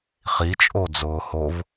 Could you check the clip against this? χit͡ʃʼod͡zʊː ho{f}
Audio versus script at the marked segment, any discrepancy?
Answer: yes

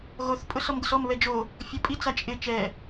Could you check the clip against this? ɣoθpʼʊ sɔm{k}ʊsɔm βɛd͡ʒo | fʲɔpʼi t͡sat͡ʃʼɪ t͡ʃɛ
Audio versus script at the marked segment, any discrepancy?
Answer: yes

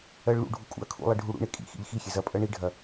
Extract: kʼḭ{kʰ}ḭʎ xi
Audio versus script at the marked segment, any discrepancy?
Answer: yes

